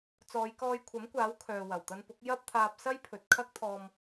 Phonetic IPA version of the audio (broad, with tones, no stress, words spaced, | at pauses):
t͡sɔː˨˧j kɔː˧jkʷʰɐ˨˥mkʷaː˨˥w kʰœː˨wɐ˨˩w t̪ɐ˧npʊ˨˥k̚ jɐ˥p̚t̪ʰaː˧p̚ sɐ˥jpʰɵ˨t̚ kʰɐ˥k̚t̪ʰɔː˧m